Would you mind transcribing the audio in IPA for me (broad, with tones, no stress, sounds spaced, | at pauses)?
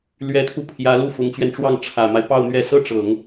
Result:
l ɥ ɛ˧˥ t̪ʰ u˧ pʰ j ä˧˥ l u˥˩ f ʊ˧˥ ŋ t͡ɕ ɥ ɛ˧ n ʈ͡ʂ w ɑ˥˩ ŋ ʈ͡ʂʰ ä˨˩ m a˦ ɪ̯ p ɑ˥˧ ʊ̯ n̪ ɥ ɛ˥˩ s ɤ˥ ʈ͡ʂ ɤ˨˩˦ ŋ